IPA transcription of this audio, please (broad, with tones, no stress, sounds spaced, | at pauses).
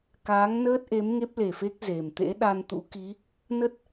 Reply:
k aː˨˦ ŋ n əː˦˥ t̚ ʔ e˨˦ m ŋ e˦˥ p̚ l e˨˩ f e˦˥ k̚ z e˨˩ m t̪ ḛ˧˥ ɗ a˧ n t̪ ṵ˧˥ k i˨˦ | n ə˦˥ t̚